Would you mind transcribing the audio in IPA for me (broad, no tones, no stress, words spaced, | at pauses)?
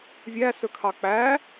vʲæsɵkʰɑ k͡pæ